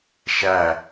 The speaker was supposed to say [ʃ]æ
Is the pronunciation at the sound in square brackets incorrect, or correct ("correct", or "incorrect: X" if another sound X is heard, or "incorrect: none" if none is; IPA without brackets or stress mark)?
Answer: correct